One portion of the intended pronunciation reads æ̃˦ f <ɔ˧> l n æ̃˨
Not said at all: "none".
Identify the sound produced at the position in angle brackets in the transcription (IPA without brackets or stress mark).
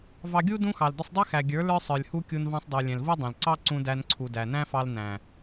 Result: ɑ˧